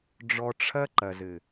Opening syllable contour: low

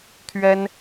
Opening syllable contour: high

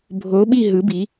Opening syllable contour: rising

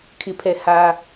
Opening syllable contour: high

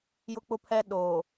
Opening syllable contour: high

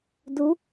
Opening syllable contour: rising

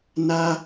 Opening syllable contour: high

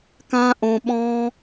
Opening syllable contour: high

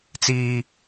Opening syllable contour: high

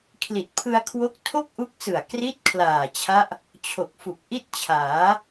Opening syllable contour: low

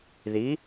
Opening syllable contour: rising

